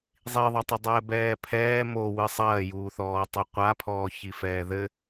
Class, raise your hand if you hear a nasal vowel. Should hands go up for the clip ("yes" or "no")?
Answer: no